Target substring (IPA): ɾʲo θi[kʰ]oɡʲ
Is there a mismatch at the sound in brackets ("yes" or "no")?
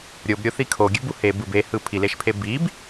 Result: no